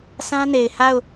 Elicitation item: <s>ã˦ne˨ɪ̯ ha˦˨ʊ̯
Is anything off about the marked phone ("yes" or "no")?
no